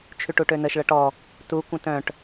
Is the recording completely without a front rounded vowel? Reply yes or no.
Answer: no